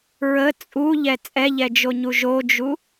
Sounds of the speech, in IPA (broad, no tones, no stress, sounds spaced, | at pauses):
ɹ ə t͡sʼ u ʎ ɛ t͡sʼ ɛ ʎ ɛ d͡ʒ o ɲ u ʒ o d͡ʒ u